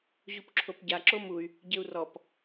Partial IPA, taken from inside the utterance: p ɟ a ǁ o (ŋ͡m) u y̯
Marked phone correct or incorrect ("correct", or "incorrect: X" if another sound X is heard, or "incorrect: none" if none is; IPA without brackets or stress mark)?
incorrect: m